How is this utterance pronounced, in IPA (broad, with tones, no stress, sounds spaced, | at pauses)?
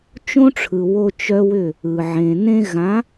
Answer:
t͡ʃ õ˦ ʈ͡ʂʰ ɯ˨ w o˦ t͡ʃ œ˦ w ʏ˦˨ | ɯ˨ ʕ ẽ˨ n ẽ˦ ɣ ã˨˦